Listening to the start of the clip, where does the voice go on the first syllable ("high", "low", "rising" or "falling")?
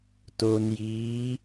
low